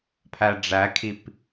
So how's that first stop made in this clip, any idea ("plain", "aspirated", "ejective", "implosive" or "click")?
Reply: aspirated